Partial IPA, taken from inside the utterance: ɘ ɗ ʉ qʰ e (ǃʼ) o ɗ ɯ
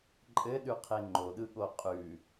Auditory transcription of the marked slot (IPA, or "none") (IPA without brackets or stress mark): ŋ͡ǃ